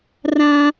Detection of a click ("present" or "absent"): absent